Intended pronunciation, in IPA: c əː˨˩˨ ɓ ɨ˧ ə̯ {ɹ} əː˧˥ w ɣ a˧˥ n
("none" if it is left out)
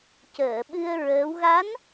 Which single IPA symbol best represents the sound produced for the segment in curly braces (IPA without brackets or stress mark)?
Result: ɹ